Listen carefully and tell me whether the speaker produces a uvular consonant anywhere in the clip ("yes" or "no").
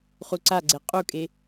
yes